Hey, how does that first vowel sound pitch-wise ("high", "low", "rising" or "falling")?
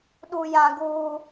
high